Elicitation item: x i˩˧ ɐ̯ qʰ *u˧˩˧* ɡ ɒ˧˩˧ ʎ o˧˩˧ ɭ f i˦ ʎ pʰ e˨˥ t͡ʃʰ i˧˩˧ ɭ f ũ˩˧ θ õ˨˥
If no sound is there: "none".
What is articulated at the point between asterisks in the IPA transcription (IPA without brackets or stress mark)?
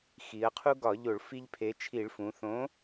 u˦